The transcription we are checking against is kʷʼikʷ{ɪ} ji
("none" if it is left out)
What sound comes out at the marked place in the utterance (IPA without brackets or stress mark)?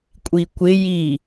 ɪ